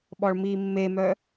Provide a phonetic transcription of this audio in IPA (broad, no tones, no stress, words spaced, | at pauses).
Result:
ɓɔɭmiːmːemœ